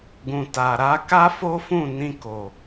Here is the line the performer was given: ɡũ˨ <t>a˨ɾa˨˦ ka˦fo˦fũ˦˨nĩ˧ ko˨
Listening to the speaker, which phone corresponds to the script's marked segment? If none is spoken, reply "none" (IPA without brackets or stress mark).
t